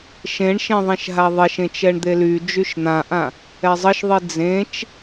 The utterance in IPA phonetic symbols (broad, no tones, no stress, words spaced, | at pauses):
ʃẽɳʃẽ ðˤẽʃɦaðˤeʃẽ t͡ʃɛɳd̪ely d͡ʒyʃn̪ãʔã | ɛzˤəʃðˤi d͡zẽt͡ʃ